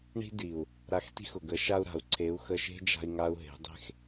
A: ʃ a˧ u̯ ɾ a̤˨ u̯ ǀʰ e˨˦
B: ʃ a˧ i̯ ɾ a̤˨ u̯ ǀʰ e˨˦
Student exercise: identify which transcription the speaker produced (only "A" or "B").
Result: A